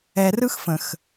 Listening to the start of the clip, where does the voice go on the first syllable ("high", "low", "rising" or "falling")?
low